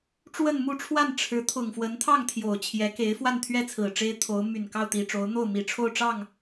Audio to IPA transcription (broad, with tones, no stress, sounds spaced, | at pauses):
ʈ͡ʂ w ə˥˧ n m u˥˧ ʈ͡ʂʰ w a˥˩ n ʈ͡ʂʰ ɻ̩˧˥ t̪ʰ ʊ˨˩ ŋ f w ə˧˥ n t̪ʰ ɑ˥˩ ŋ t̪ʰ j o˨˩ ʊ̯ t͡ɕʰ j ɛ˧˥ k e˧˥ ɪ̯ f w a˥˧ n t̪ʰ ɥ ɛ˥˩ t͡sʰ ɹ̩˨˩ ʈ͡ʂ e˥ ɪ̯ t̪ʰ o˧˥ ʊ̯ m y˨˩ n k ɑ˥˩ ʊ̯ t̪ i˨˩ ʈ͡ʂ o˧˥ ʊ̯ n̪ o˥˩ ʊ̯ m i˨˩ ʈ͡ʂʰ o˥˧ ʊ̯ ʈ͡ʂ ɑ˥˩ ŋ